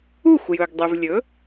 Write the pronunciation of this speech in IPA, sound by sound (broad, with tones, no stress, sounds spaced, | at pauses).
u˥˩ xʷ j ɵ˩ ɡ dˤ ʉ˩ v lʲ ɵ˩˥